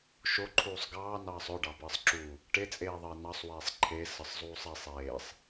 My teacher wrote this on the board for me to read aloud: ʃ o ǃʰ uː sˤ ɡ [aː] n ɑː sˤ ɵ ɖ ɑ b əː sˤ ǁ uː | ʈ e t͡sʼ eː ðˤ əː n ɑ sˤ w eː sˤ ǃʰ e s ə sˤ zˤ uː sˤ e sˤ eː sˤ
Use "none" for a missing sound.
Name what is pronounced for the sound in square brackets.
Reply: ɑː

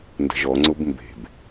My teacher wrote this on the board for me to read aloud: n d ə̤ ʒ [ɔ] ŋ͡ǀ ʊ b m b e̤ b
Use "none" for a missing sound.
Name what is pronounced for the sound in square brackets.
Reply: ɔ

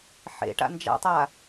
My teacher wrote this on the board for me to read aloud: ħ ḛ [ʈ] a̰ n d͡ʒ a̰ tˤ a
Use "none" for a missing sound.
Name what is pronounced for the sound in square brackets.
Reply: ʈ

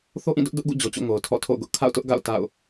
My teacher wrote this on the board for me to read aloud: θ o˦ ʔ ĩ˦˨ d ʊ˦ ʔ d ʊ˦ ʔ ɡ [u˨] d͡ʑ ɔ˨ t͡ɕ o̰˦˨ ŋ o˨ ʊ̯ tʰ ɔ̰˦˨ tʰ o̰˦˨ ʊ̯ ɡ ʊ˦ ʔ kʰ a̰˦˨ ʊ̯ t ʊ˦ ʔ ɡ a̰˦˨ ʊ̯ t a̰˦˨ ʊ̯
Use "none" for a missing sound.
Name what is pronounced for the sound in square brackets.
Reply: ṵ˦˨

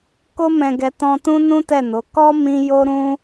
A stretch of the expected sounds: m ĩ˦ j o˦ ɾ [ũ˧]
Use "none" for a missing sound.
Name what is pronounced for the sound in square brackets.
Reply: ũ˦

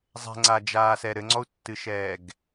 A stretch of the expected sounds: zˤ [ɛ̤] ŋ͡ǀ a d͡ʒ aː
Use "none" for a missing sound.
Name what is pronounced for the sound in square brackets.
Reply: ɛ̤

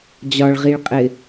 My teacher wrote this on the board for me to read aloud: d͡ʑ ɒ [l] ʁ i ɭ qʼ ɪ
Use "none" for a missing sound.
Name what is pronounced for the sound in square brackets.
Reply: ɭ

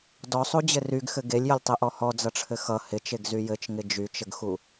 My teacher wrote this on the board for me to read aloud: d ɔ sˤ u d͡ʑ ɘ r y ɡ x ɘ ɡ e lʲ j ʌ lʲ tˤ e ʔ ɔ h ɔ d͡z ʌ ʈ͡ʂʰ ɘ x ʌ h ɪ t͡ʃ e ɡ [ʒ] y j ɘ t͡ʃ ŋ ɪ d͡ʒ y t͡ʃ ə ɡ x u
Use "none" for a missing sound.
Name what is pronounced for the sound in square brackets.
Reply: z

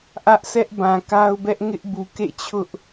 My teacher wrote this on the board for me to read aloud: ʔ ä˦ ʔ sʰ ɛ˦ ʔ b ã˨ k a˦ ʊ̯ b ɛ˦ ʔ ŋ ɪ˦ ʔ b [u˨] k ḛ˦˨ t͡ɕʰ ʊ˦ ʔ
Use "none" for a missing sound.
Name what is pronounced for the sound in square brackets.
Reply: u˨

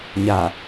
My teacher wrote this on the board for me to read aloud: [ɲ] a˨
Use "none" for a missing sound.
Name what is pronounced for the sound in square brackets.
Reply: ɲ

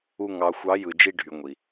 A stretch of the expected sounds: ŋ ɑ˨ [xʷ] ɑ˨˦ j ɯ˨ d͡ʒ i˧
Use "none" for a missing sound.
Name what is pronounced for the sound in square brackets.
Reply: xʷ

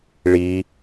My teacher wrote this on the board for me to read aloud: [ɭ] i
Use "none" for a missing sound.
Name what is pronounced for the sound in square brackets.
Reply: ɭ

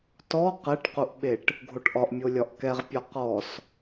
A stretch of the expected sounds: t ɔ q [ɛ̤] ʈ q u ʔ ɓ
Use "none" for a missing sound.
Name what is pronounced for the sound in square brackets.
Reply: ɛ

